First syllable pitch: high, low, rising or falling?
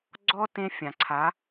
high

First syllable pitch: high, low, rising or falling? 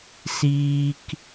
high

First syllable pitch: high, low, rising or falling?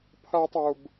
high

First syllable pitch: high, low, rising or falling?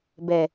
low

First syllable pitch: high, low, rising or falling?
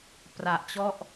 low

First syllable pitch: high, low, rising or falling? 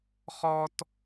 high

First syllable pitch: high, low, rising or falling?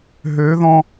rising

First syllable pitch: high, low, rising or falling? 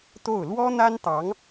falling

